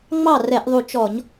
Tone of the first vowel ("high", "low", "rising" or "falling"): falling